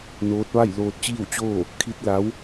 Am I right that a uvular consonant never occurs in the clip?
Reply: yes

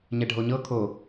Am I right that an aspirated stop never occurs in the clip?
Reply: no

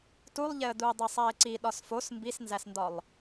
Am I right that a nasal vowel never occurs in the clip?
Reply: yes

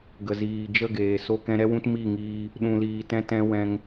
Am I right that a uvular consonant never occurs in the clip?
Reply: yes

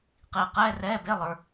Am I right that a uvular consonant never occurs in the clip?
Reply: no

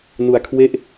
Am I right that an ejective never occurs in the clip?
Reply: yes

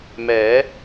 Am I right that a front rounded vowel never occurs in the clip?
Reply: yes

